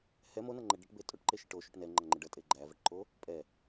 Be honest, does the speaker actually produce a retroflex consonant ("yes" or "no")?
yes